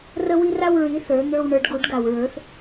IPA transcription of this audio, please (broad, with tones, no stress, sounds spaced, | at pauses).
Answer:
r ə˦ w i˦ r a˦ w ɹ i˨˦ θ ə˞˨˦ n̪ ə˞˦ w ɳ ə˞˨˦ ɖ ɡ u˨˩˦ ɖ ɡ a˨ w ɹ ə˞˨˦ θ